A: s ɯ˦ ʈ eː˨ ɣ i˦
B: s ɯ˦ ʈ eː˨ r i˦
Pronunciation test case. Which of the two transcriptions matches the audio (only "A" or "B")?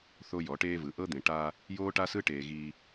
A